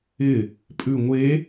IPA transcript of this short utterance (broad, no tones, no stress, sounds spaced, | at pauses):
ɪ | pʼ ʉ ŋʷ e